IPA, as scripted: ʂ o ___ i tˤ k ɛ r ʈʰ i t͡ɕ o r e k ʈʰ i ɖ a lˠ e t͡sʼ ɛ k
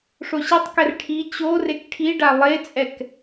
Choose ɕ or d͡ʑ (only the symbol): ɕ